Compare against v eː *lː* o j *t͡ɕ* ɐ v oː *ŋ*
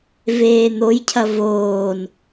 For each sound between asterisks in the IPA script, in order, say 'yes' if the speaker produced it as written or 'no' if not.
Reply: no, no, no

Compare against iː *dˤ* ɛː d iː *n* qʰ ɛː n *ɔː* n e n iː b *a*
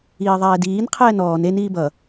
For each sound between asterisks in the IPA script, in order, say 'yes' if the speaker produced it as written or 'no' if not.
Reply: no, yes, yes, no

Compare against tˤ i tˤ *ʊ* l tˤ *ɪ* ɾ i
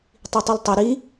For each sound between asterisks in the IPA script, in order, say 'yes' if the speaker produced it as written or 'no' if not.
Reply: yes, no

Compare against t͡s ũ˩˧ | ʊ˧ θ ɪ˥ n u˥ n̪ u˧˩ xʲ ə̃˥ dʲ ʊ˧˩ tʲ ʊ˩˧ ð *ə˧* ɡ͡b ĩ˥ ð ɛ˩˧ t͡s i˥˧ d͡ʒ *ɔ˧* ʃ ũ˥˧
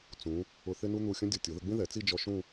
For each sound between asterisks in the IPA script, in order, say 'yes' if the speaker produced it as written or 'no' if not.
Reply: yes, yes

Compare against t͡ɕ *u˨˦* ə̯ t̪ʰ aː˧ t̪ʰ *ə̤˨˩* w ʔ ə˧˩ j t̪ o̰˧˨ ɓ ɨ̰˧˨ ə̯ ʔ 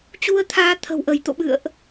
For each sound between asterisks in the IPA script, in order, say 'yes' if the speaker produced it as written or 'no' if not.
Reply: no, yes

